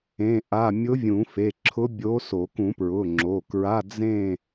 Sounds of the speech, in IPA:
ẽ˧˥˧ ʔ a˧˥˧ mʲ ʊ˧˥ vʲ ũ˨˩˦ f e˩˧˩ ǁʰ ʊ˧˥ bʲ o˧˥ s o˨˩˦ k ũ˨˩˦ p ɹ ʊ˩˧˩ ŋ͡ǁ o˩˧˩ k ɹ a˧˥˧ d͡z ẽ˥˨

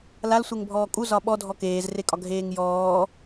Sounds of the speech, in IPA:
l a l sʷ e ŋ bʱ ɔː kʼ u z ɒ ɓ ɔ dʱ ɔ k eː z r e kʼ ɒ ɡʱ eː ŋ j ɔː

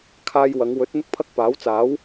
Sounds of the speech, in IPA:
kʰ aː˧ j w ɐ˨˧ ŋ w ɵ˨˥ t̚ n̪ ʊ˥ k̚ pʰ ɐ˥ k̚ p aː˨˥ w t͡s aː˨˥ w

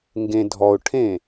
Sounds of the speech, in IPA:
ŋ ɡ ẽ dʱ ɔ ʊ̯ ʈʰ ẽ

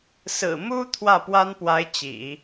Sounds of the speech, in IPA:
s ɹ̩˨˩ m u˥ t̪ʰ w ä˥˩ p w a˥ n p w a˧˥ ɪ̯ t͡ɕ ḭ˨˩˦

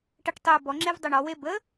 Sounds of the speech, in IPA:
ʈ ə ʈ tˤ ʏ ʊ̯ b ɔ ŋ͡ǁ e v dˤ ɵ ɳ ɔ w e b ə

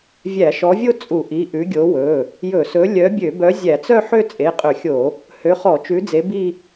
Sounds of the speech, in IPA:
vʲ æ˧˩˧ ʃ ɔ˨˦ vʲ o˥˧ t͡sʼ u˧˩˧ ʔ i˩˧˩ ʔ ʉ˨˦ ɡʲ o˨˦ w ɵ˩˧˩ | j ɵ˧˩˧ s ɵ˨˦ lʲ œ˨˦ bʲ ø˧˩˧ b œ˨˦ zʲ æ˧˩˧ t͡s œ˥˧ ħ ø˥˧ t͡sʼ e˩˧˩ qʼ ɵ˧˩˧ xʲ o˧˩˧ | h ø˨˦ χ ɔ˧˩˧ t͡ʃ ʉ˨˦ d͡z e˨˦ b i˥˧

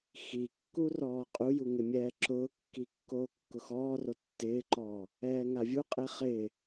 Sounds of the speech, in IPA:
x i kː u r ɔː qʼ u j u ŋ ɪ mʲ ɛː ǁ ʊː kː i kː oː kː ʊ x ɔː r o tː ɪː ǃ ɔː | ɛː ŋ a vʲ u qʼ e χ ɪː

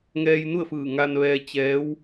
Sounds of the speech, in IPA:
ŋ ɛː˧ j n u˥˨ ə̯ f ɯː˧˩ ŋ a˧ n ʋ ɛː˧ t͡ɕ ɛː˧˥ w

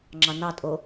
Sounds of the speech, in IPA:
ŋ͡ǁ ɑ n ɑ tʼ o

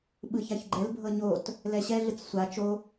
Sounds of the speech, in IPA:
ɓ ɯ ç a ç ɡ͡ǃ ɛ l bʱ ɤ ɲ o t | l ɛ ɕ ɛ ɮ ɯ t͡s sʷ a t͡ʃ o

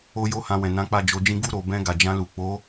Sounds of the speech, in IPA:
o˦ j o˦ h ã˧ w ɛ̃˨ n ã˨˦ k͡p a˦˨ d͡ʒ o˨˦ d͡ʒ ĩ˦ ɡ u˦˨ ɾ o˨ b ɛ̃˧ ɡ a˨ d͡ʒ ã˧ l u˨ k͡p o˨˦

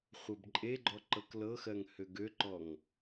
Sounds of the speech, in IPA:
χʷ ɤ b ǃʼ e ɡ͡ǃ ɔ ǃ ɤ k l ɤ x ɜ ŋ h ø ɡ ø ǃ ɔ ŋ

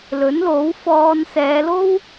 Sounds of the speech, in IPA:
l ɵ˨˥ n l o˨˥ w f ɔː˧ n s ɛː˨˧ l o˥ w

